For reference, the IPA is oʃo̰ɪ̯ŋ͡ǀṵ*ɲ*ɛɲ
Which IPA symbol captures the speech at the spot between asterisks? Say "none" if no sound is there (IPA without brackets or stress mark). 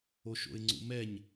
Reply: m